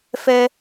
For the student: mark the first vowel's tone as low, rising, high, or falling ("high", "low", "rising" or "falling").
high